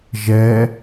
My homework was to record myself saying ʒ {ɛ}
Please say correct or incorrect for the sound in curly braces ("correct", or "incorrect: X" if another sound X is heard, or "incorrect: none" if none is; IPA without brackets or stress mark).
correct